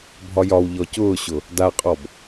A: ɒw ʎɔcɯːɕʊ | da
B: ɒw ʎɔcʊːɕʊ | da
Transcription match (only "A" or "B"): B